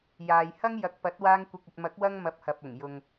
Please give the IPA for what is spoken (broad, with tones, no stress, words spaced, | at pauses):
jaː˨jhɐ˥ŋ jɐ˨k̚pɐ˨˥t̚ waː˧ŋkʷɪ˨k̚ɐ˨t̚mɐ˨˥k̚ wɐ˥ŋmɐ˧p̚hɐ˨p̚ʊ˨˩ŋ jʊ˨ŋ